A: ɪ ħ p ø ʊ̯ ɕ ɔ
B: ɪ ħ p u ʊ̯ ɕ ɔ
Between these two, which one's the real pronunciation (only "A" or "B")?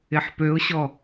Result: A